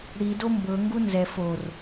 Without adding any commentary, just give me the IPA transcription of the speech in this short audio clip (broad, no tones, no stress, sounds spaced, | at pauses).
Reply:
ɽ i d o m b ɤ ŋ ɡ u n z ɛ f o r